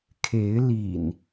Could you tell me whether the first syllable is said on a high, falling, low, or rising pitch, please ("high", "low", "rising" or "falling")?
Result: rising